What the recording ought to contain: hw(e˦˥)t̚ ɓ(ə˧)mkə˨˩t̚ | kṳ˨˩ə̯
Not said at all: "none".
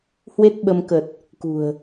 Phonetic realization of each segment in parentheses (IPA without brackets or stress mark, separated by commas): e˦˥, ə˧